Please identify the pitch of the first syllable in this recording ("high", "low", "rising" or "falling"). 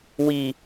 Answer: high